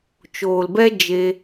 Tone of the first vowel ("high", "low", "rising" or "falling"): low